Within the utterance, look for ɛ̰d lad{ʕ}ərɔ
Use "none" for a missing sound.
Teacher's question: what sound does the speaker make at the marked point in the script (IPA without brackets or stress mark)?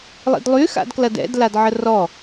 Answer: ʕ